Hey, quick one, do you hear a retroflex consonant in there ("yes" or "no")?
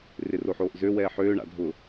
yes